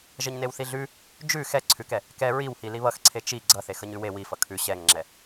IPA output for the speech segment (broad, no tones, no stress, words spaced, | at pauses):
ʒʌɲnewθiɮʉ | d͡ʒʉ xɛ ǀʰʉkɛ | kɛ ɹiwhi liβʌxǀʰe t͡ʃi ɡ͡ǀʌ θexʌɲʉwe wifʌ kʰʉ ɕɛŋŋ͡ǁɛ